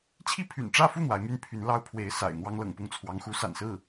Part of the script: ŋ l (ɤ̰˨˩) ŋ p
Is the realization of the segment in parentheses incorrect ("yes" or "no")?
no